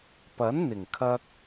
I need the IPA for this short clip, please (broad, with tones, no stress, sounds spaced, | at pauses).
p ɐ˨˥ n n̪ ɪ˨˩ ŋ kʰ ɐ˧ k̚